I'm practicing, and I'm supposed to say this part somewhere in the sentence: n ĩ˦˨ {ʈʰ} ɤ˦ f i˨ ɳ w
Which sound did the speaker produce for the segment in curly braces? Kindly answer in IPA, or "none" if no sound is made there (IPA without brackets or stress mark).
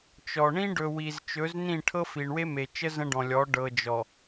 ʈʰ